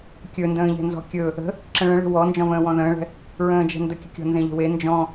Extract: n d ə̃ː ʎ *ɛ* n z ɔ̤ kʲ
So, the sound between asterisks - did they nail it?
no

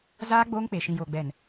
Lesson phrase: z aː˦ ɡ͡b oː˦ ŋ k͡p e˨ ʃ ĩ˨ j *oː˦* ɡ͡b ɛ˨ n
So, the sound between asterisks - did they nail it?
no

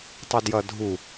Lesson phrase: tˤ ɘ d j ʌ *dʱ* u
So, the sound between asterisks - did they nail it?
yes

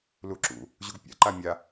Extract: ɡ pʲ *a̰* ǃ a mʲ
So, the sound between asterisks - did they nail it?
yes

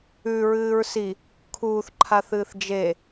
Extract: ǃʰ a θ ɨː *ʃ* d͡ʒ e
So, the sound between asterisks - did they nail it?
no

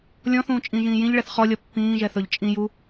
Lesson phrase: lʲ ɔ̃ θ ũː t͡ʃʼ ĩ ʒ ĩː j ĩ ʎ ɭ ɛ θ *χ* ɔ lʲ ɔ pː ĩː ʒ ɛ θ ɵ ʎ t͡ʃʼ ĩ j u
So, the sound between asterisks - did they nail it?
yes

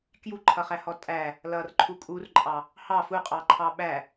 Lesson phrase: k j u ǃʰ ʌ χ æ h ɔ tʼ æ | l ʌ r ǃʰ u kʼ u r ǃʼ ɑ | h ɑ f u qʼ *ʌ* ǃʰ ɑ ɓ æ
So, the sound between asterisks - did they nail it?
no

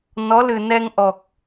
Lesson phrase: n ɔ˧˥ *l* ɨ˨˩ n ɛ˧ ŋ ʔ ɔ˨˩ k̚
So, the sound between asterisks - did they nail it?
yes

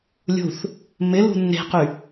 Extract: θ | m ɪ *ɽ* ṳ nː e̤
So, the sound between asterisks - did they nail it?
no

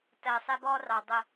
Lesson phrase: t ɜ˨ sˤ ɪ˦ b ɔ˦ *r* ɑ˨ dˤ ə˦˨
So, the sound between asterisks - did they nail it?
yes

